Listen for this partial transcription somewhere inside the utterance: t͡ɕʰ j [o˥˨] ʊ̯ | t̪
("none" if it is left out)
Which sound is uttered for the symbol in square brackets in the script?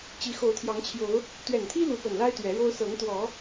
o˨˦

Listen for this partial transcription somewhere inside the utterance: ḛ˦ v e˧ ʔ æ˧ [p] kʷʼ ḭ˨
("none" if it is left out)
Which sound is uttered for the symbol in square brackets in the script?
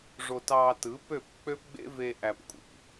p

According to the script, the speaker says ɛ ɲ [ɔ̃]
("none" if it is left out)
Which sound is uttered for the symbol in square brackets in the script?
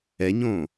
õ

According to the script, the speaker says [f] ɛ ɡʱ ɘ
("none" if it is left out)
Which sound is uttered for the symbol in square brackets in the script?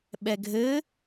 ɓ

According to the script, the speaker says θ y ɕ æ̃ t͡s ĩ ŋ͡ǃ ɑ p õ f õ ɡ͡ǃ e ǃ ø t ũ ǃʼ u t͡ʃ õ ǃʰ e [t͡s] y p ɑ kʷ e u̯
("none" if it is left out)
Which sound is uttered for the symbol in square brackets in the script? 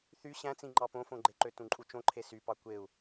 s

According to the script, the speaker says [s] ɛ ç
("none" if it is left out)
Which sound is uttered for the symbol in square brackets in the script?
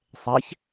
sˤ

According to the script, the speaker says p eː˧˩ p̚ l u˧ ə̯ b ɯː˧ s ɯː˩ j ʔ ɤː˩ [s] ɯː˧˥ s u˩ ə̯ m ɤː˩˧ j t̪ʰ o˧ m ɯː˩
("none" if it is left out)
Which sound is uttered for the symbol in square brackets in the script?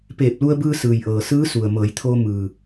s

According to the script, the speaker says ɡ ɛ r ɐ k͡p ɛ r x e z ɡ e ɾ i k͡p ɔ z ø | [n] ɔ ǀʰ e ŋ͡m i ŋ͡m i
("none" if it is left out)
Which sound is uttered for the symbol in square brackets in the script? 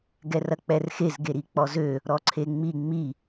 ɾ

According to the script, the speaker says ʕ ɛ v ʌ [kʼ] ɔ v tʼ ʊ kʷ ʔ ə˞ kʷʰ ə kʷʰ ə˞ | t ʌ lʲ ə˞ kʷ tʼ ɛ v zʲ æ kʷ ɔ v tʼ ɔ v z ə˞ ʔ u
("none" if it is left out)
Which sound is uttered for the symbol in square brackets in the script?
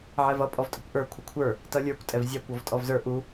pʼ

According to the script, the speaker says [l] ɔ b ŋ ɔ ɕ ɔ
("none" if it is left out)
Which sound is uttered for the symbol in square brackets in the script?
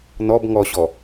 n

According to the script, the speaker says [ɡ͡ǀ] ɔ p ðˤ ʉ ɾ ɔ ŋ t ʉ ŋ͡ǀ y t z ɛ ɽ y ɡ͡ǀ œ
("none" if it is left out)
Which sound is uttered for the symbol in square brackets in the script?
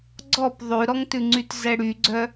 ɡ͡ǀ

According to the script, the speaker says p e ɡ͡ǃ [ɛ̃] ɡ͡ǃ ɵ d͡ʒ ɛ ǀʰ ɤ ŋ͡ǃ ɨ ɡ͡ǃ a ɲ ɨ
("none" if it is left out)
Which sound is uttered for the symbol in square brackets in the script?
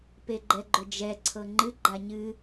ɛ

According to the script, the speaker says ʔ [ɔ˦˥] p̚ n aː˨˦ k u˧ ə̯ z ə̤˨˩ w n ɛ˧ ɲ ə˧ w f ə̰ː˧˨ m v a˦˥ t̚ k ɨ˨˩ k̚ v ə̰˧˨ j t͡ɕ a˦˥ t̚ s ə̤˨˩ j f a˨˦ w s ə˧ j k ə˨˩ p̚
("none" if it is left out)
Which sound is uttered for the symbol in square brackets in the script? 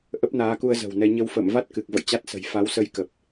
ə˦˥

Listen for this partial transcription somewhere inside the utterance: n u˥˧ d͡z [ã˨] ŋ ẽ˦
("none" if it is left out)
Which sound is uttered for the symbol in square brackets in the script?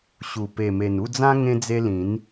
ã˦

